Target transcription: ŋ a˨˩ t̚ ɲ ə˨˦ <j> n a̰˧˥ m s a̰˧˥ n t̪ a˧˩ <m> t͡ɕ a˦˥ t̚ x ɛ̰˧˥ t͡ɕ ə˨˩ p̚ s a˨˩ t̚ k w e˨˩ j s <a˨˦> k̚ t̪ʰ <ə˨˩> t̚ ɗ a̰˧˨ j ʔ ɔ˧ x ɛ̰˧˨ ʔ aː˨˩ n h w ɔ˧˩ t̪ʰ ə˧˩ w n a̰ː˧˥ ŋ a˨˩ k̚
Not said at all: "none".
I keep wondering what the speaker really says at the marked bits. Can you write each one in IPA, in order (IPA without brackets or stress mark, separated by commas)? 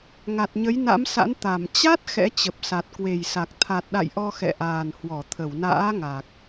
j, m, a˨˩, a˨˩